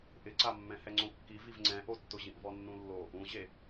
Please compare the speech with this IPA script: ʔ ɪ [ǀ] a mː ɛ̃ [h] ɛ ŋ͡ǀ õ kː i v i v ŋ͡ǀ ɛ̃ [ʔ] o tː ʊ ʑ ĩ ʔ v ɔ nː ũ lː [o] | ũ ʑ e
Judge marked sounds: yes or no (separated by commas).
yes, yes, yes, yes